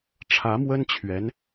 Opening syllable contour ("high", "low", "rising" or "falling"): rising